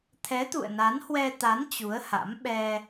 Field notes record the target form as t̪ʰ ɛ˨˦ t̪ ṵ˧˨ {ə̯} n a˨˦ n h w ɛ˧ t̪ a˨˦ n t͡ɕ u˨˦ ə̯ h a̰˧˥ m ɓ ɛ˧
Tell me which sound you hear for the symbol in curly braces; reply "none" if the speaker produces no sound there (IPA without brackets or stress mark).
ə̯